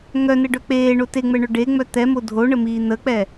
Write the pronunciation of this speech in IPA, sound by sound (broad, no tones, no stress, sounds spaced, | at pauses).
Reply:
ŋ œ n ɘ ɖ œ k͡p eː ɳ o t e ŋ͡m ɛ ɳ œ ɖ e ŋ͡m œ t̪ ɛ m o dʱ o ɳ ə m iː n̪ ə k͡p ɛ